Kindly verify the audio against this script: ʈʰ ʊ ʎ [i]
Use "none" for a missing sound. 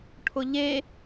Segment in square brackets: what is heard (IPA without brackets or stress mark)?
e